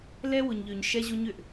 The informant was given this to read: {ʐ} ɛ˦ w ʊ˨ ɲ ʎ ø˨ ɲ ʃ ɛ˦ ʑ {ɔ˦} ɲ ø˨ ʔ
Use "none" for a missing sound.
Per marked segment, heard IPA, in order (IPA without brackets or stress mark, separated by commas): l, o˦